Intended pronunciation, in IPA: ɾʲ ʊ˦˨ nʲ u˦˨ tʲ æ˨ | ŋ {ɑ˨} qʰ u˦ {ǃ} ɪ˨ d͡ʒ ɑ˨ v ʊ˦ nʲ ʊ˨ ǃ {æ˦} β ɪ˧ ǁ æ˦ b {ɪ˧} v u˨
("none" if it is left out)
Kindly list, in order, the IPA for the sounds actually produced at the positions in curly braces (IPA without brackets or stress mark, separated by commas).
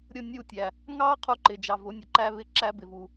ɑ˦, ǃ, æ˦, ɪ˨